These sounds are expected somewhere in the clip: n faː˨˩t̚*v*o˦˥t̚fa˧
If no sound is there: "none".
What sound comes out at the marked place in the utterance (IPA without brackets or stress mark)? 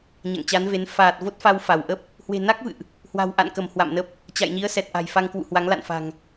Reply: v